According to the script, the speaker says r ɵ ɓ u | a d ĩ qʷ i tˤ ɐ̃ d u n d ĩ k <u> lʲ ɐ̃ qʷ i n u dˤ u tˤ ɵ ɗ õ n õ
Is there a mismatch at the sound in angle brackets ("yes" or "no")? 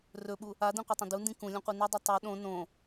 yes